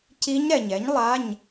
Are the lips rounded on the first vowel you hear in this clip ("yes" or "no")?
no